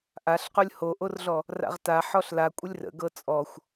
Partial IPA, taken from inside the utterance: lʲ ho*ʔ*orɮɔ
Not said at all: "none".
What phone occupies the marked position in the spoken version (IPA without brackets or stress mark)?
ʔ